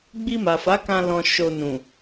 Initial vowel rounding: unrounded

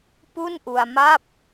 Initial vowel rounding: rounded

